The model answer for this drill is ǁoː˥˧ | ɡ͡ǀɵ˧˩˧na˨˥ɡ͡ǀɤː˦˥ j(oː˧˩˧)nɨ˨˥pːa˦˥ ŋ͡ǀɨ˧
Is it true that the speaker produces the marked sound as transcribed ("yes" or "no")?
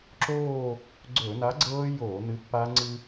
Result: yes